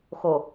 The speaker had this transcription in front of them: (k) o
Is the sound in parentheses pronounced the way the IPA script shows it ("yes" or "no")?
no